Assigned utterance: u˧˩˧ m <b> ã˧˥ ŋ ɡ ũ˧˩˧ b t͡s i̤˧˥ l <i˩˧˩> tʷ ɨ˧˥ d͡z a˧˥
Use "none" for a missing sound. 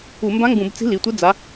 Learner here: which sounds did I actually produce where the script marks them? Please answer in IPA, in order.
b, i˩˧˩

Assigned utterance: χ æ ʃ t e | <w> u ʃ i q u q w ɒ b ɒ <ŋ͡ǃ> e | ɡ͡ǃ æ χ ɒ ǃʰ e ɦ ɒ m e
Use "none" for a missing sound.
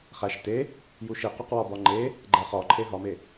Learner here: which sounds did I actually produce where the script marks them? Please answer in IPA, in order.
j, ŋ͡ǃ

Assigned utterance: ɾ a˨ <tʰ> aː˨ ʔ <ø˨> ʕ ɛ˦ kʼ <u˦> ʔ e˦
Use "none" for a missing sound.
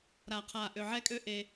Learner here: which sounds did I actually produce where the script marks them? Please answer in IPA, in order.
qʰ, ø˨, ø˦

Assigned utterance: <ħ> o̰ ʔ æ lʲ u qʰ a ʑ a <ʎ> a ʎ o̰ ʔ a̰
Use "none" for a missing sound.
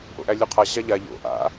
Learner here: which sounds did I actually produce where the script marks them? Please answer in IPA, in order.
ʔ, ʎ

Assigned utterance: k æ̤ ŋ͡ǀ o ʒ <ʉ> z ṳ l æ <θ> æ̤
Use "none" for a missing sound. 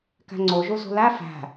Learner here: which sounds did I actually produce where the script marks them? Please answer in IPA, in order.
u, f

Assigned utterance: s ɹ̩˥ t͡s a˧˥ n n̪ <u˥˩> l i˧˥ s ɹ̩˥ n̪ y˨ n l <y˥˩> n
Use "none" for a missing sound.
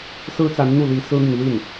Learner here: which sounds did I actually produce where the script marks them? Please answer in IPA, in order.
u˥˩, i˥˩

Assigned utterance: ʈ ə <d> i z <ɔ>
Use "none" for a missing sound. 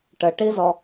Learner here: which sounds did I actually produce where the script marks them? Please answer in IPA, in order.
ʈ, ɔ

